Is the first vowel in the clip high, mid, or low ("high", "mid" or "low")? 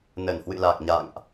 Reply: mid